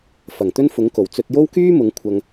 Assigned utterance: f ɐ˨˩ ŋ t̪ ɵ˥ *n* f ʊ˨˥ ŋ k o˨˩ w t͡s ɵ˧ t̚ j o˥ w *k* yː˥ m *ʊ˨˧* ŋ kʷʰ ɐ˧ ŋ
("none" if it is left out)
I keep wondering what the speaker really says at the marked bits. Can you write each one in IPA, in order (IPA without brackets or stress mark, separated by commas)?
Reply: n, k, ʊ˨˧